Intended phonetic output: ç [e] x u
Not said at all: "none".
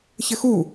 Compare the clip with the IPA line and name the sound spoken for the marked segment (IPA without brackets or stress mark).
ɘ